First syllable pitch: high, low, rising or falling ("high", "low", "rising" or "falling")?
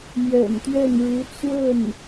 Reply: low